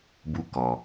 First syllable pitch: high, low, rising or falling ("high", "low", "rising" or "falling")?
high